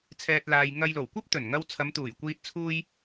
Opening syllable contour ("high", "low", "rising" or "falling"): low